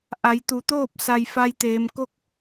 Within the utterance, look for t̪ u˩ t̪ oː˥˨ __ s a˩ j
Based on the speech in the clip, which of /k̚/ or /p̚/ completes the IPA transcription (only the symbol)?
p̚